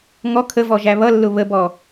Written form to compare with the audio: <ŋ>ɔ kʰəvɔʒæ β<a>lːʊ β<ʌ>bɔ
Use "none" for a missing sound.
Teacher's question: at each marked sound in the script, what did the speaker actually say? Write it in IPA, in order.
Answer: ŋ, ʌ, ə

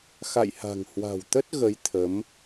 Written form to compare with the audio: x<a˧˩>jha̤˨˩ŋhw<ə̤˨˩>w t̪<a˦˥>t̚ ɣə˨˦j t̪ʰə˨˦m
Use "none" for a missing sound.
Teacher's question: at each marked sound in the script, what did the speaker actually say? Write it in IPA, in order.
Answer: a̰˧˨, a̤˨˩, ə˦˥

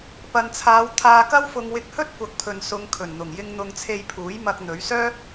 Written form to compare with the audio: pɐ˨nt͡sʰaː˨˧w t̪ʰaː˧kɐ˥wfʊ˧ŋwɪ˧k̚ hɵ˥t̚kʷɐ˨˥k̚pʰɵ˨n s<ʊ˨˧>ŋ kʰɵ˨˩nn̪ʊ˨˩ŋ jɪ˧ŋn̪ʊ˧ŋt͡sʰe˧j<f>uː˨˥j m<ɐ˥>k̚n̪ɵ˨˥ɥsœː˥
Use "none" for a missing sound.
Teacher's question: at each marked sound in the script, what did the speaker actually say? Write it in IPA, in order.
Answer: ʊ˨˧, pʰ, ɐ˧

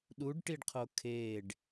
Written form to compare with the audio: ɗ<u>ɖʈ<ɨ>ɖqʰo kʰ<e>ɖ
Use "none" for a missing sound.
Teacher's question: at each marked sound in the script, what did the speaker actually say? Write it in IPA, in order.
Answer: u, i, e

